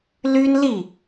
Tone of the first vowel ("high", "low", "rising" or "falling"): high